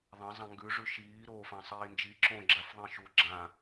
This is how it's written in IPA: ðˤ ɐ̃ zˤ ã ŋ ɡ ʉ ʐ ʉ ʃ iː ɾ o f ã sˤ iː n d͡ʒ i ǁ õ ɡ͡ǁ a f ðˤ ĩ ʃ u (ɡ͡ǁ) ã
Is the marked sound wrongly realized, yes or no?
no